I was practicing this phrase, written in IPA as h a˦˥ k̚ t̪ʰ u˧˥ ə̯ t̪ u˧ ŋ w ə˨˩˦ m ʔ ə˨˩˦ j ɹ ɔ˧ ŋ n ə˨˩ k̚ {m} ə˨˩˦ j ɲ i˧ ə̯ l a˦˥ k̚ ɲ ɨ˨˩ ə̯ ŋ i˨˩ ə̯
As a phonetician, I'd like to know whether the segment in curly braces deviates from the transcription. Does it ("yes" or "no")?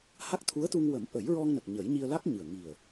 yes